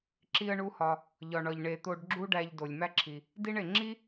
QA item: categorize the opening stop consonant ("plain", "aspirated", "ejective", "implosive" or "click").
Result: click